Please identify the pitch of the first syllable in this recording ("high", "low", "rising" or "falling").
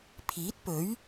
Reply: rising